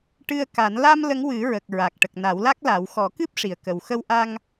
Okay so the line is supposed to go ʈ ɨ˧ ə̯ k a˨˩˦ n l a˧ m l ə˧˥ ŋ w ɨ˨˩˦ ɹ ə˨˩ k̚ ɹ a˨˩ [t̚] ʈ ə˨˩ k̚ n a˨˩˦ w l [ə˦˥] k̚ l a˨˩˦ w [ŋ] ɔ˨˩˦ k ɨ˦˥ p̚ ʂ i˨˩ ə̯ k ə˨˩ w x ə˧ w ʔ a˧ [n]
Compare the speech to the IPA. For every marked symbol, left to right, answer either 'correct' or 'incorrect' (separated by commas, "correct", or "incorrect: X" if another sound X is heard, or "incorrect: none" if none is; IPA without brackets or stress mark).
incorrect: k̚, incorrect: a˦˥, incorrect: x, incorrect: ŋ